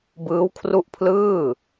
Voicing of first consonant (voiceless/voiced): voiced